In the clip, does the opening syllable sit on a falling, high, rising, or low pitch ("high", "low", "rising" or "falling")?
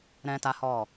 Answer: high